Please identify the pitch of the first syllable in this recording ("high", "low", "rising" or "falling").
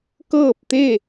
falling